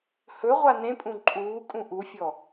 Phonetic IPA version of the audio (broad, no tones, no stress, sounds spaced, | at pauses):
h ɵ ʁʷ a n ẽ pʼ ũ ǃʼ uː kʼ ũ ʔ u fʲ ɔ